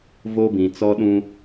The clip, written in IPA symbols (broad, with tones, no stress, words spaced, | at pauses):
vo˦bĩ˨t͡sɔ˦ɗũ˦